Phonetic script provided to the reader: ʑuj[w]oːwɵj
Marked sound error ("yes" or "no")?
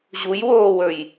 no